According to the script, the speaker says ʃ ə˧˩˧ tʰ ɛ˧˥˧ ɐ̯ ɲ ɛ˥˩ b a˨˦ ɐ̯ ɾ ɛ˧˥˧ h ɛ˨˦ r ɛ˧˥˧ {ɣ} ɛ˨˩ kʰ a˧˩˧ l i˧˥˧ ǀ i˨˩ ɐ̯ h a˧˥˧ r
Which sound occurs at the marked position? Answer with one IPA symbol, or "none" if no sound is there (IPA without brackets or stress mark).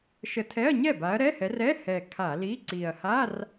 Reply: h